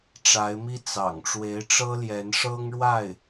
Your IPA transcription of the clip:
ʈ͡ʂ a˧˥ ɪ̯ m i˥ t͡s ɑ̰˨˩ ŋ ʈ͡ʂ w e˧˥ ɪ̯ ʈ͡ʂ ɤ˥ l j ɛ˧˥ n ʂ ɤ˥ ŋ ɻ w a˥˩ ɪ̯

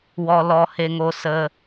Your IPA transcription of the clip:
w ɔ˧ l ɔ˧ h e˧ ŋ o˧ s ə˧

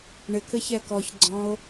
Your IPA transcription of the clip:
ɳ ɪ k ɘ ç ɛ k ɔ ç ɡ͡ǀ ɔ̃ o̯

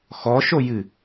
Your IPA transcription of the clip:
x ɔ ʃ o j ɨ

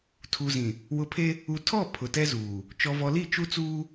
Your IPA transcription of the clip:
tʰ u˨ z ĩ˨ | w ʊ˨ pʰ e˦ | u˨ tʰ ɔ˦˨ pʰ ʊ˨ t ɛ˦ z uː˨ | t͡ʃ ɔ˨ v ɔ˨ l i˦˨ t͡ʃ u˦ t͡s uː˦

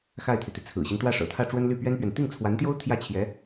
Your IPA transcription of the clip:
x a˥˩ ɪ̯ t̪ʰ y˩ t̪ i˩ t͡sʰ ɹ̩˨˩ ɕ i˦ n t̪ w ä˥˩ ʂ ɤ̰˨˩ t̪ʰ ä˥˩ ʈ͡ʂ w ə˥ n l y˥˩ p ɥ ɛ˥ n p ɥ ɛ˨ n t̪ i˥˩ ŋ t͡sʰ w a˧˥ n t̪ j o˥ ʊ̯ t̪ʰ j ä˥˩ t͡ɕʰ j ɛ˧˥

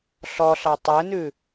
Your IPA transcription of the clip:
ɬ ɔ ɬ ɑ tˤ ɛ n ʉ

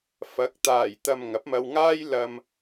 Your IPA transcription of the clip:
f ɐ˨˥ k̚ t̪ aː˨˩ j t̪ ɐ˨ m ŋ ɐ˨˥ p̚ m ɐ˧ w ŋ aː˥ j l ɐ˧ m

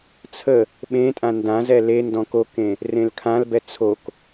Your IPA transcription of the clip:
t͡sʰ ə | ɓ ẽ tʼ ã n d ã z ɛ l e n d ɔ̃ k o k ẽ | r ẽ l kʰ ã l b ɛ t͡sʰ o k

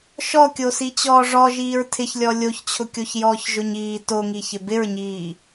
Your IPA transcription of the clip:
ʃ ɔ kʲ o s i t͡ɕ ɔː ʐ ɔ ʒ iː ɹ tʰ ɪ ç lʲ ɔ lʲ o ç t͡ɕʰ ʊ kʲ o ç j ɔː ç ʒ ʊ ɲ iː t o ŋ i ç ɪ b ɪ ɹ ɲ iː

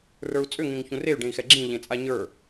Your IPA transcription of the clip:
r ə˞ u̯ t͡sʼ ʏ ŋ ẽ ŋ ç ũ r e y̯ ɖ ẽ i̯ x ɛ ɡ͡ǁ ĩ ʎ ẽ t͡sʼ a ɲ ə˞

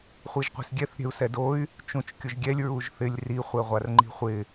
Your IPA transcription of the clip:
χʷ i ʒ qʷ i̤ s ɡʲ ɛ θ ɾʲ ɛ̤ u̯ s ɛ d o y̯ | t͡ʃ ũ t͡ʃ kʲ ʊ ʒ ɡʲ ɛ lʲ ɹ u ʒ θ ɪ lʲ r i χʷ ɛ ʁʷ a r ŋ͡ǃ i̤ χʷ ɪ

